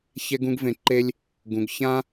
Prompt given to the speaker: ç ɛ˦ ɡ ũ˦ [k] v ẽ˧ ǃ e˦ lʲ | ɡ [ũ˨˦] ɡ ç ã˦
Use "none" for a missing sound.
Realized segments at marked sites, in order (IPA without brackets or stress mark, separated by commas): ɡ, ũ˨˦